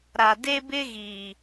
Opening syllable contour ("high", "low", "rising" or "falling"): low